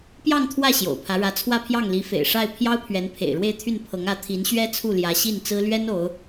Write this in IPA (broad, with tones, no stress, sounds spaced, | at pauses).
p j ɑ˥˧ ŋ t̪ʰ w ä˥˩ ɕ j o̰˨˩ ʊ̯ pʰ ä˧˥ ɻ ä˧˥ t͡sʰ w ä˥˧ pʰ j ɑ˥˩ ŋ l i˧˥ f ḛ˨˩ ɪ̯ ʂ a˥˩ ɪ̯ pʰ j ɑ˥ ʊ̯ pʰ ɥ ɛ˧˥ n pʰ ḛ˨˩ ɪ̯ ɻ w e˥˧ ɪ̯ t̪ʰ y˥˩ n pʰ ɤ˧˥ ŋ ä˧˥ t̪ʰ i˧˥ n ɕ ɥ ɛ˥ t͡sʰ u˥˩ l j ä˧˥ ɕ i˥˩ n t͡s ɹ̩˥ l ɥ ɛ˥ n o˧˥ ʊ̯